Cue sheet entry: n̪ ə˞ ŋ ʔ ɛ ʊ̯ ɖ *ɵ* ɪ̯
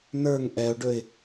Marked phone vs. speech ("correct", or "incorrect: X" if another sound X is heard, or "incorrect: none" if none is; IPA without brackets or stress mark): correct